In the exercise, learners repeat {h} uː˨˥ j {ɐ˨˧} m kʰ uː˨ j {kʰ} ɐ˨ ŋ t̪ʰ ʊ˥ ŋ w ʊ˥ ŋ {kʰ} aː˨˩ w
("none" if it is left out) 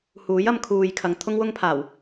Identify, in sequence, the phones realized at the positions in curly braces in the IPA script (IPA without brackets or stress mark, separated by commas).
h, ɐ˨˧, kʰ, pʰ